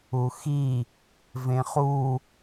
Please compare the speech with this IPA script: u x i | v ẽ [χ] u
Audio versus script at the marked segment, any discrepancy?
no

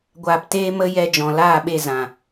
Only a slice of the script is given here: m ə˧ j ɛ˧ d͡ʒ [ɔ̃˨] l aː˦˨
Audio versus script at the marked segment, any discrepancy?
no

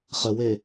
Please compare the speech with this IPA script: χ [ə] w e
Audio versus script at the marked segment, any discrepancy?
no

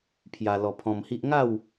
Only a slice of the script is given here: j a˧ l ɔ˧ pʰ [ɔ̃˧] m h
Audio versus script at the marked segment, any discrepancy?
no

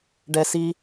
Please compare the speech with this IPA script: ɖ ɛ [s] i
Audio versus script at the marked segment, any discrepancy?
no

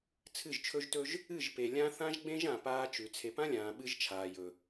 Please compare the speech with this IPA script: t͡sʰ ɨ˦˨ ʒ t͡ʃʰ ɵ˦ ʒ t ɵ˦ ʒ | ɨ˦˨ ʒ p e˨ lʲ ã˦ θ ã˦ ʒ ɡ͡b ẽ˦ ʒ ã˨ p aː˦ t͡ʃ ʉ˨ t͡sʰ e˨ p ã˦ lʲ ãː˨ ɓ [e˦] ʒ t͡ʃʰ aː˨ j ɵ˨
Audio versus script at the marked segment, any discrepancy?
yes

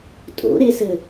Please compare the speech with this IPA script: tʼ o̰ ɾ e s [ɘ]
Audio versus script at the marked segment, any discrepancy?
no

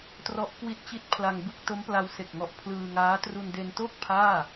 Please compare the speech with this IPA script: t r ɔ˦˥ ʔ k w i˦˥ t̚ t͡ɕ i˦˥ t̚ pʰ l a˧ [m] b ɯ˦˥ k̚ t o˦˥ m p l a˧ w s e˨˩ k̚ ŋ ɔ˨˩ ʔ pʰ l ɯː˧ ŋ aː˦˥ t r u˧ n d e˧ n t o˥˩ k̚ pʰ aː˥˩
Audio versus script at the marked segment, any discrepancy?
yes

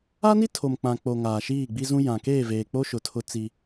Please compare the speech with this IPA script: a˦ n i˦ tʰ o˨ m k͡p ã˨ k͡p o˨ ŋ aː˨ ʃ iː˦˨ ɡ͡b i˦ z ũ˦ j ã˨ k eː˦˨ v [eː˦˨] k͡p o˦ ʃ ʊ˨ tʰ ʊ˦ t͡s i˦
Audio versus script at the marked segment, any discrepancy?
yes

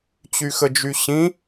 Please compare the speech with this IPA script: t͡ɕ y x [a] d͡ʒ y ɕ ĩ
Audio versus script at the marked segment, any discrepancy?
yes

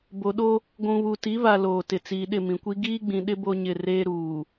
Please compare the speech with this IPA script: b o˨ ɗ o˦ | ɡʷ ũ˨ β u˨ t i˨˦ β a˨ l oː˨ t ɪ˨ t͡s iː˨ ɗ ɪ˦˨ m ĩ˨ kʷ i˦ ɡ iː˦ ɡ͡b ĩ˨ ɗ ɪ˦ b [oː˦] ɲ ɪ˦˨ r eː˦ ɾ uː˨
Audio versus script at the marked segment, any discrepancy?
yes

